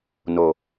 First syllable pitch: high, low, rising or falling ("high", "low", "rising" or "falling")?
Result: low